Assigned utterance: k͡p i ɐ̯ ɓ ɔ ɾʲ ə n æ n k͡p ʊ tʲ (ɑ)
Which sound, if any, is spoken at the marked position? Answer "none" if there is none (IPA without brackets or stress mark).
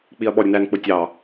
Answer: ɑ